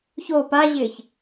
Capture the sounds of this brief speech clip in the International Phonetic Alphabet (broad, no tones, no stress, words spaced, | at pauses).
ço paʑɪːç